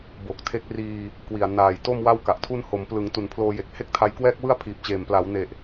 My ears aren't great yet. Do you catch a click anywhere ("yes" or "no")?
no